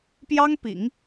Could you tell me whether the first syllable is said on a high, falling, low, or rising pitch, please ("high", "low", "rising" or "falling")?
high